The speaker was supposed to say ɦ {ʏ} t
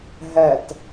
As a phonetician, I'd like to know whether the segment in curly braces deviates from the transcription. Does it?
yes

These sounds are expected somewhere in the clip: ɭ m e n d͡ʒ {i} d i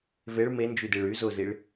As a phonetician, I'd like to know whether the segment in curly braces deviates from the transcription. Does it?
yes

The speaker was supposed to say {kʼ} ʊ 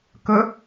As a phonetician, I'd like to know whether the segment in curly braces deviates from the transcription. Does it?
yes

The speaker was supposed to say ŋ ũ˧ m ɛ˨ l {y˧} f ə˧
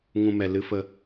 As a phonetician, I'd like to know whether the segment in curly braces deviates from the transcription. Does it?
yes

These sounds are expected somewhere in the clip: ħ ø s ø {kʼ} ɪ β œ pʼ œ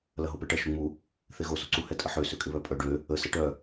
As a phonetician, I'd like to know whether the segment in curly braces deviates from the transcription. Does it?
no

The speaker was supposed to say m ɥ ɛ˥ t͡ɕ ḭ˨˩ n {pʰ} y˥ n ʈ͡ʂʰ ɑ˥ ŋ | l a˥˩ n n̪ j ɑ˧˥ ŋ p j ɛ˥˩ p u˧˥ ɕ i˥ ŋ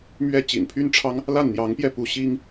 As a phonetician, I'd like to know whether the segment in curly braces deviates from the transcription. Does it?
no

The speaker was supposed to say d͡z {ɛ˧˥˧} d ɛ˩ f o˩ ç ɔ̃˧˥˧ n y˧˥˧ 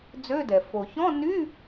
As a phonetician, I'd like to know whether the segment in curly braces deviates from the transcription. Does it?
yes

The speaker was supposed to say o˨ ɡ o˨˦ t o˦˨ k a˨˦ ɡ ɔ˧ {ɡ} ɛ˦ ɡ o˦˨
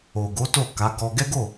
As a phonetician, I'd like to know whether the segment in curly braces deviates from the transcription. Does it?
no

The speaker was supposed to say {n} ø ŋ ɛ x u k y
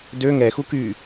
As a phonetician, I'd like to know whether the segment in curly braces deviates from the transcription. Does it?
yes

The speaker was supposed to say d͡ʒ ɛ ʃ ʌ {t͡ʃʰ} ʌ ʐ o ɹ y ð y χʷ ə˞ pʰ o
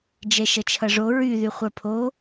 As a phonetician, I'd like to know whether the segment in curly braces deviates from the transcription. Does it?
no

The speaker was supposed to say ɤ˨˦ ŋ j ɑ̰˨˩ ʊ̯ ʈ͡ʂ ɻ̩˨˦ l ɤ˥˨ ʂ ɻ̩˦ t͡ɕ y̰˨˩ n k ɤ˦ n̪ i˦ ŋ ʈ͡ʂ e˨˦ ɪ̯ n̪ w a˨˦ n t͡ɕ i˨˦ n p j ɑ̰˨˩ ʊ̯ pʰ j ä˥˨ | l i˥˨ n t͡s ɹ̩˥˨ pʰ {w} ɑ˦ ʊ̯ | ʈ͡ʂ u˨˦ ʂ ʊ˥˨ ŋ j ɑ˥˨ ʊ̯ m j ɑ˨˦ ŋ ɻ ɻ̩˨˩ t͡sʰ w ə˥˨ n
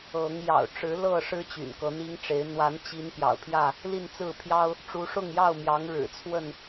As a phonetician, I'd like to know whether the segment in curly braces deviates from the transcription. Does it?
yes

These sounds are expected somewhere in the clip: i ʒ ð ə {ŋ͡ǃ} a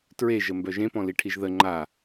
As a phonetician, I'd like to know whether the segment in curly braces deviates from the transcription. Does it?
no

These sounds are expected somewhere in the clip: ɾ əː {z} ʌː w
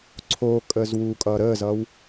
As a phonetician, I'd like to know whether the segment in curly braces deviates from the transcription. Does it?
no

